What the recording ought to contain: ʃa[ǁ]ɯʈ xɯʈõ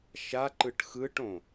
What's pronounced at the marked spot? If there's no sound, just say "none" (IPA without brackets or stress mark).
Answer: ǃ